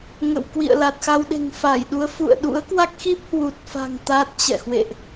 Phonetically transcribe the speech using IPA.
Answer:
ŋ ə̰˧˨ w k w ḭ˧˨ ə̯ l a˨˩ t̚ x a˧ w ɗ e̤˨˩ ŋ f a˧˩ j ɗ u˨˦ ə̯ f ṵ˧˨ ə̯ ɗ ṵ˧˥ ə̯ k w a˦˥ k̚ x i˦˥ p̚ h w u˨˩ t̚ f a̤˨˩ ŋ t̪ a˦˥ t̚ t͡ɕ ɛ̰˧˨ h w ḛ˧˨ ʔ

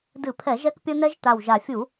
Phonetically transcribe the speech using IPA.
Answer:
d ɨ˧˩˧ pʰ ɛ˧˩˧ ʒ ɛ˦˥ k pʲ ɐ˦˥ n̪ ɛ˦˥ ʒ t̪ a˨˩ w ʒ a˨˩ fʲ u˧˩˧

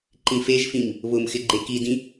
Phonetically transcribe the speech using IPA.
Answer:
ǃ ĩ f e ʒ f ĩ m | β ʊ m x ɪ ɡ͡ǃ e k i d ĩ

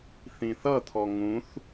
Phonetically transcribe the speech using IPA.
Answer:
θ ĩ θ ʌ t̪ʰ ɔ ŋ ũ θ

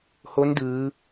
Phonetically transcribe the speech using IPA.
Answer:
h o˧˥ n d ɯː˩˧

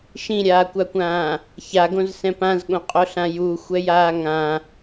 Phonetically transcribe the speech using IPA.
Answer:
ʃ ĩ ɾʲ aː kʷ a kʷ ãː | ç a ɡ õ z s ɛ̃ p ã z ɠ õ qʼ o ɬ ã j u xʷ ɛ j aː ŋ ã

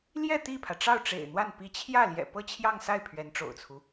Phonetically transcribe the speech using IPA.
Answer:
l j ɛ˥˧ t̪ i˥˩ pʰ ä˩ ʈ͡ʂ ɑ˥˩ ʊ̯ ʈ͡ʂ ḛ˨˩ ɪ̯ n̪ w a˥˩ n p i˧˥ t͡ɕʰ j ä˥˩ l j ɛ̰˨˩ p ɤ˥ t͡ɕʰ j ɑ˥˧ ŋ s a˥˩ ɪ̯ pʰ ɥ ɛ˧˥ n ʈ͡ʂ o̰˨˩ ʊ̯ t͡sʰ u˦

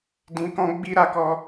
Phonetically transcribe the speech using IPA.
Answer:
d ĩ˨ k ɔ̃˧ ɡ͡b i˧ ɾ a˧ k ɔ˧

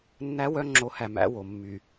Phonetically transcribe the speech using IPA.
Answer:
nː æ˦ w œ˦ ŋ͡ǁ o˨˦ h æ˨ m æ̰˦ w o˨ mː y˨

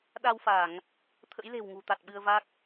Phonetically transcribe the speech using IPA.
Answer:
ɗ a˧ w f a˧˩˨ ŋ | t̪ʰ ə̰˧˥ j l e̤˨˩ w ŋ ṳ˨˩ t̪ a˨˩ t̚ ɓ ɨ˧ ə̯ v a˦˥ k̚

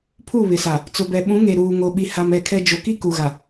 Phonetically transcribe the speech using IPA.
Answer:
pʰ u˦˨ β ɪ˨ s a˨ | t͡s ʊ˨ b ɛ˨ ɓ ũ˨˦ ŋ e˨ ɾ uː˨ ŋ o˨ ɓ i˨ h a˨ m ɛ˦˨ kʰ ɛ˦ d͡ʒ o˨ k i˦ k u˨ ɣ a˨

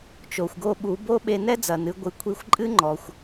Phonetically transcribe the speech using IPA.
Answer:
t͡ʃ o˩ xʷ ɡ o˧ ɓ u˩˧ b o˥ ɓ e˧ n ɛ˥ d͡z ɐ˩ n ɨ˩˧ ɡʷ ɨ˩˧ kʷʰ i˧ xʷ ǃʼ ɨ˥ ŋ͡ǃ ɔ˩ xʷ

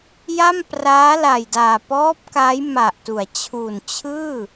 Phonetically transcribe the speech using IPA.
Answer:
j a˥˩ m p r aː˦˥ l a˨˩ j d aː˨˩ p ɔː˦˥ p̚ k a˦˥ j m a˨˩ ʔ t u˩˦ a̯ t͡ɕʰ u˨˩ n t͡ɕʰ ɯː˥˩

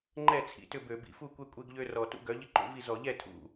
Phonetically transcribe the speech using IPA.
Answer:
ŋ͡ǃ ɛ˥˩ t͡sʰ ḭ˩˧ t ʏ˥˩ b ø˧˩˧ b ḭ˩˥ f u˥˩ kʷ ɛ˦ kʷʼ e˦ ɡ ʎ ø˦ r ɔ˨˩ t ṵ˦ ɡ œ˩˥ ʎ ɪ˦ ǃ ṵ˩˥ v i˥˩ z ɔ˧˩˧ ʎ ɛ˥˩ tʰ ṵ˨˩

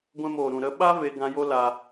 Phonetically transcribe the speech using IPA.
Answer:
ɡʷ ɛ̃˧ m oː˨ ɾ ũ˨ ɾ ə˧ ɓ a˦ v e˦ ɡ ã˧ j o˦ l a˧

